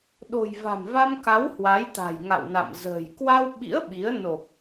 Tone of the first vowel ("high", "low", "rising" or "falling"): low